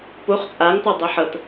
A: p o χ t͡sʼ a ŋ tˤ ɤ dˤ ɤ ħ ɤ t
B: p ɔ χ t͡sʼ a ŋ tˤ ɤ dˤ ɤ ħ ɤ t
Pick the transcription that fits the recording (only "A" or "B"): A